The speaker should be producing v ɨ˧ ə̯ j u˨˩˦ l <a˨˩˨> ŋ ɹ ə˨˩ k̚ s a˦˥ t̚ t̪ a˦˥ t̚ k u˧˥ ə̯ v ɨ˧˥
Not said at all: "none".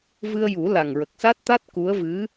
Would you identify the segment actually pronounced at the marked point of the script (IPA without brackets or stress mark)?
a˨˩